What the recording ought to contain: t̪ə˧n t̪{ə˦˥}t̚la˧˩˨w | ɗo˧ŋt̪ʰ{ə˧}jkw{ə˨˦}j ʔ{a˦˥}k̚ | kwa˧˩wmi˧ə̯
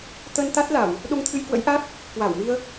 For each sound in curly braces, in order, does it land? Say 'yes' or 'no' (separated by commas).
no, no, no, yes